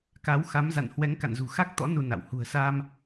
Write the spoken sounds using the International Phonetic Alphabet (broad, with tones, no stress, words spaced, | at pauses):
ka˨˦wxa˨˦mza̰˧˨n hwɛ˨˦ŋka̰˧˨nzṳ˨˩ xa˦˥k̚t̪ɔ̰˧˥ nu˧na̰˧˨w hṳ˨˩ə̯sa˧m